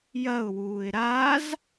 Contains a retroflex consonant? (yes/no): no